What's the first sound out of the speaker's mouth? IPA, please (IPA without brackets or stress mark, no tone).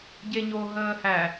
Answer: ɟ